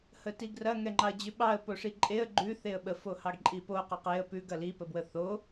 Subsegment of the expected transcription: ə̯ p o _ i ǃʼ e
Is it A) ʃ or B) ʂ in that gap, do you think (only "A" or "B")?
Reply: B